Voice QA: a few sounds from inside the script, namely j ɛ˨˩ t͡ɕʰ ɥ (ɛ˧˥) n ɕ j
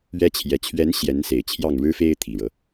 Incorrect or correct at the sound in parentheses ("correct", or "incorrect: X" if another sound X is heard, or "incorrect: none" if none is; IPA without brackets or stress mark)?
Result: correct